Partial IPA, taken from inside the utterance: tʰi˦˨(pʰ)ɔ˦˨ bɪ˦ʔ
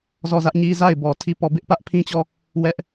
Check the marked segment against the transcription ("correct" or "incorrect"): incorrect